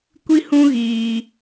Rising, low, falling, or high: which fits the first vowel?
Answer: high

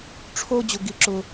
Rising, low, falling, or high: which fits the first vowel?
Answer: high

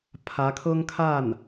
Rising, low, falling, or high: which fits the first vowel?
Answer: rising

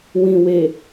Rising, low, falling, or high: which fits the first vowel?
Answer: low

